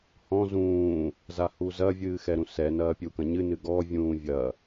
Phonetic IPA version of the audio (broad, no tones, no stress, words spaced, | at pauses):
hɔ̃ zũː | zahuzɐ vʲɨːxɛɾũsɛ nɐːpʲukɐ̃ɲɨ nɨɡɔ vʲũːvʲɐ